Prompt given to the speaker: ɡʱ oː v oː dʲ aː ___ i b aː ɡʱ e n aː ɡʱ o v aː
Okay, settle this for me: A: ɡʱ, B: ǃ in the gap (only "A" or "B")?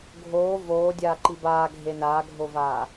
B